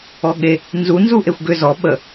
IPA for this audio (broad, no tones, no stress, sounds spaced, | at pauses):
ɔ ɠ e | n z u n z u ʔ e xʷ ɡ ʏ z ɔ ɓ ə